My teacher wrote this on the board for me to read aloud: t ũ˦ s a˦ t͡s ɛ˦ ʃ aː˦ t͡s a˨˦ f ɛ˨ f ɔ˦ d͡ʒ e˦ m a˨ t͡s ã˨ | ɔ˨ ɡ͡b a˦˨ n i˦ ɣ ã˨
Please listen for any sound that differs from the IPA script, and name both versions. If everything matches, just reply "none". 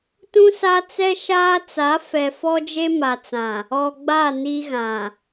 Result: none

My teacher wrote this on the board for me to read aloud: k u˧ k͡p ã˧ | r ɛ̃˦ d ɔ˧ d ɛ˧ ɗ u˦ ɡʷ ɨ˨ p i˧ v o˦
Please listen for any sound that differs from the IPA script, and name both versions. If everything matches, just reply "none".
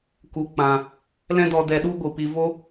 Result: r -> l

